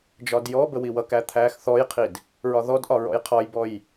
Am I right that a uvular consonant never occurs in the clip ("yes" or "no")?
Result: no